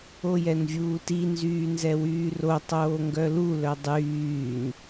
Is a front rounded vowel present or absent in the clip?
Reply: present